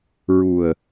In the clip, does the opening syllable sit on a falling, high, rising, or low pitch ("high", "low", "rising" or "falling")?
low